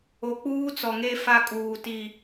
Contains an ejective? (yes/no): yes